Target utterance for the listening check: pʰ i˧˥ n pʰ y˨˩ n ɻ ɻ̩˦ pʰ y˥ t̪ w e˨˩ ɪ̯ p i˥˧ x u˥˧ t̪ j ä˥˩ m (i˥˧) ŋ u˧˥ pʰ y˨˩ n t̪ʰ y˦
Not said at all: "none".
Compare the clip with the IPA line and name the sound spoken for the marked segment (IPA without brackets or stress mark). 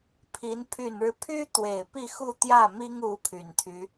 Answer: i˥